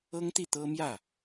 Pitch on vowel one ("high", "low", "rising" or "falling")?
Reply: high